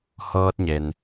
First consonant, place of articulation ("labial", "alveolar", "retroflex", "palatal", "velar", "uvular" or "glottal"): glottal